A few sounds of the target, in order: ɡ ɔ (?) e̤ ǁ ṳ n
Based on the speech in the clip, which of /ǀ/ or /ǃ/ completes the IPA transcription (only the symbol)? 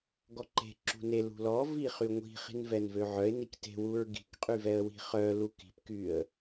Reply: ǃ